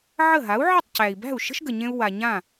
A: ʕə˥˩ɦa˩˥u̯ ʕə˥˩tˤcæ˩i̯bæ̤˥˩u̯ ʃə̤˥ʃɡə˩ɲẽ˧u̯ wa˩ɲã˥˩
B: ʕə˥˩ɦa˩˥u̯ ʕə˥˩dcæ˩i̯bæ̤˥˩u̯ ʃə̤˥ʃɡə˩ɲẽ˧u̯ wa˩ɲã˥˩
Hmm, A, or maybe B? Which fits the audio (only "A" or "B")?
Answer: A